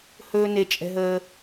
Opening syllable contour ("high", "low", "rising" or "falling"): high